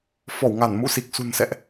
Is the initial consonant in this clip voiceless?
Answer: yes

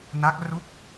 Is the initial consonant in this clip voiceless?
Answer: no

